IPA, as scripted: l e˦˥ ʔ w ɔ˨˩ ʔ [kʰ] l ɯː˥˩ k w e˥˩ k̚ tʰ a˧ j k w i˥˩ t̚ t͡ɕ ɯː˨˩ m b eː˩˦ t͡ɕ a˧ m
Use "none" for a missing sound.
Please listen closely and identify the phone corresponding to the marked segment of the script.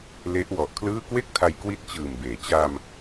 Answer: kʰ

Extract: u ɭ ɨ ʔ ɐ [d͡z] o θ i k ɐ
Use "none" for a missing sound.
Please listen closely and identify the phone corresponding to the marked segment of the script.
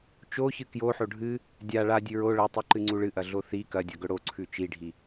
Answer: ɮ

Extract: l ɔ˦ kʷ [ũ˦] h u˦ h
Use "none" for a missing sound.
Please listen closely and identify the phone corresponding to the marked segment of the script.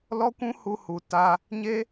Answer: ũ˦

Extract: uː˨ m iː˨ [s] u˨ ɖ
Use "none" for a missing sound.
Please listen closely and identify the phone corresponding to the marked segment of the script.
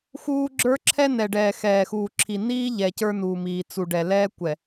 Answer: t͡s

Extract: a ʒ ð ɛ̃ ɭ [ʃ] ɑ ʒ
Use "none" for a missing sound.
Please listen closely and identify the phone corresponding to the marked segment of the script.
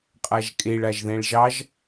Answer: ʒ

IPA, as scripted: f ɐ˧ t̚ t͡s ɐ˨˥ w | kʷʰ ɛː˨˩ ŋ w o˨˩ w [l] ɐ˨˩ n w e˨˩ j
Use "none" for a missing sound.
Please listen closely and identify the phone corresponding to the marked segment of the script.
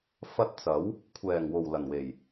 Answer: l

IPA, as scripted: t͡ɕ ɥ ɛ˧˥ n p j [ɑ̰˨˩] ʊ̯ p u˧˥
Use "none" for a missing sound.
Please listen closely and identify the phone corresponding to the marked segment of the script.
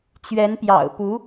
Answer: ɑ̰˨˩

